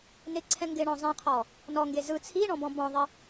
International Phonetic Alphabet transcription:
n ɪ ǀʰ ɛ̃ ŋ ɡ ɪ ɳ ɔ̃ zˤ ɛ̃ qʰ ɔ | n ɔ ŋ ɡ e z ɯ t͡sʰ i ɳ ɔ̃ b ɔ̃ b ɔ̃ ðˤ ɪ

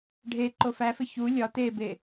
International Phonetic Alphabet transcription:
ɖʱ e ǃ o f æ f e ç u lʲ ɒ t̪ e b e

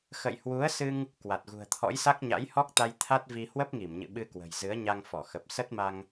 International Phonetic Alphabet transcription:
x ə̰˧˨ j h w u˨˦ ə̯ s ɨ˧ ŋ | k w a˨˩ t̚ ɣ ṳ˨˩ ə̯ t̪ʰ ɔ̰˧˥ j s a˦˥ k̚ ɲ a̰˧˥ j h ɔ˦˥ k̚ t̪ a˧ j t̪ʰ a˦˥ t̚ v i˧ h w ə˦˥ p̚ ŋ i˧˩ m ɲ ɨ̰˧˨ ɓ ɨ˧ k w ə̤˨˩ j z ɨ˨˦ ə̯ ɲ a˧ ŋ f ɔ˧˩ x ə˨˩ p̚ s ə˦˥ t̚ m a˧ ŋ

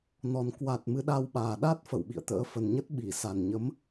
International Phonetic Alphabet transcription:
n ɔ˨˩ n k w a˨˩ t̚ m ɨ˨˦ ɗ a˧ w ɓ aː˨˩ ɗ a˦˥ t̚ f ə̰˧˨ w ɓ ḭ˧˨ ə̯ t̪ ə̰ː˧˥ f ə˨˩ n ɲ ə˦˥ t̚ ɓ i˧˩ s a˨˩ n ɲ ə˨˦ m

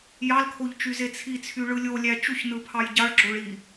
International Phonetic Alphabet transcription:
j ɑ l kʰ o ʎ t͡ʃ y z e t͡sʰ i t͡sʰ y ɭ ɯ lʲ o lʲ æ t͡ʃ u ç n ɯ pʰ ɑ j ɟ ɑ ɭ ɡ͡ǁ o ɭ i

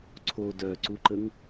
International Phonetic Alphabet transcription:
ǀʰ o d œ ǀ u ǃ ə ŋ

